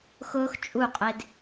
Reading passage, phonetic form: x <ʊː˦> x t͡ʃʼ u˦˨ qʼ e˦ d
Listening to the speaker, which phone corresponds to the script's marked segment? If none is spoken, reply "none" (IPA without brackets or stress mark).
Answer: ʊː˦